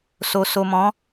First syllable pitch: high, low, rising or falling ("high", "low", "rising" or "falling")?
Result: low